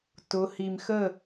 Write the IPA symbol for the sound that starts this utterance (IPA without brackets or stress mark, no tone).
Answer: t